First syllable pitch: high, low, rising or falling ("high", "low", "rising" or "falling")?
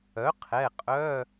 rising